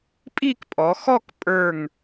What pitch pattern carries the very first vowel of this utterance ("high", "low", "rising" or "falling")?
falling